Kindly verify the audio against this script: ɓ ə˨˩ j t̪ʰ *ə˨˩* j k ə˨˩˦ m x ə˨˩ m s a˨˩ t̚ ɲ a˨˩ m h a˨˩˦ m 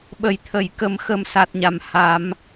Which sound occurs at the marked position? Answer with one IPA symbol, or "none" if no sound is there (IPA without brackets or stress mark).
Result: ə˨˩˨